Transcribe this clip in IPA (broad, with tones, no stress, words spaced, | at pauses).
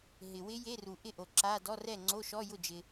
ɦɪ˨ wɪ˦˥ je˧˥˧ru˨ʔɪ˥˩ʔo˨ ǁa˧˥˧ dɔ˧˥˧rɛ˥˩ ŋ͡ǀo˧˥˧ʃɔ˧˥˧jʊ˥˩d͡ʒɪ˨